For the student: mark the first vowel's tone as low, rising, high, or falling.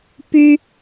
high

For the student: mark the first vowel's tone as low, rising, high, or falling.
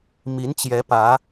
rising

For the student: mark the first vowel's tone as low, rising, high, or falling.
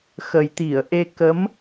low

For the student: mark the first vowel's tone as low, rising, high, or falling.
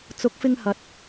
rising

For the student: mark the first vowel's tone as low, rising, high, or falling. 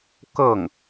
falling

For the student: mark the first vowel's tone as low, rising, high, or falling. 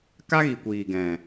high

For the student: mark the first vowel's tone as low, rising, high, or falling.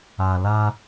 low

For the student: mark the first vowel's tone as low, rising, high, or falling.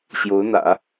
rising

